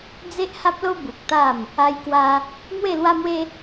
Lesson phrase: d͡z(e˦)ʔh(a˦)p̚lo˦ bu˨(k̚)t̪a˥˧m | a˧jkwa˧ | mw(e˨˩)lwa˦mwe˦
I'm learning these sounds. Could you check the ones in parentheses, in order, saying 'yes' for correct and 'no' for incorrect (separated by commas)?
yes, yes, yes, no